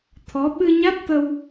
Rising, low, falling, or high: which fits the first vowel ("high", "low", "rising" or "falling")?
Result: rising